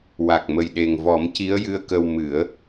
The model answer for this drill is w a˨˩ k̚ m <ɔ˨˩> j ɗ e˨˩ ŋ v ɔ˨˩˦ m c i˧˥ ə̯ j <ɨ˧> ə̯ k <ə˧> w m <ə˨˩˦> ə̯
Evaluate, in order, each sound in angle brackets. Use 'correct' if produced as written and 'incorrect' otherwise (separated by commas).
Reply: incorrect, correct, correct, incorrect